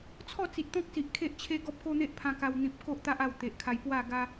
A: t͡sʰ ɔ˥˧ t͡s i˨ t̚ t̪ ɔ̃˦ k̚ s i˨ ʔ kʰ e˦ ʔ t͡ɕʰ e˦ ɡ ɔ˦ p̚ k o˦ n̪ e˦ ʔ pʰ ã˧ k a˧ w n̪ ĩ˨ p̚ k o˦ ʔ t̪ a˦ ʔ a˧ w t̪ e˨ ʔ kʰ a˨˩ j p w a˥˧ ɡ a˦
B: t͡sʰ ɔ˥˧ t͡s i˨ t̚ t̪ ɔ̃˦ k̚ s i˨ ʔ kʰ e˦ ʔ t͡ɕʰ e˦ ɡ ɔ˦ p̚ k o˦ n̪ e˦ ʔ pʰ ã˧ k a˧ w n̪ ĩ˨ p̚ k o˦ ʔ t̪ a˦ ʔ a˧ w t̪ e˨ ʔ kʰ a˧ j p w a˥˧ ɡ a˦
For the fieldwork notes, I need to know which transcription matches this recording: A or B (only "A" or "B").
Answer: B